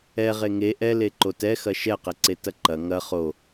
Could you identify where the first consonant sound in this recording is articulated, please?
uvular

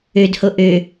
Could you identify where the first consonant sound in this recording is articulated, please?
alveolar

